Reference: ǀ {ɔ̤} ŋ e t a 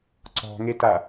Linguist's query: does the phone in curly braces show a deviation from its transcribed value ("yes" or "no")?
no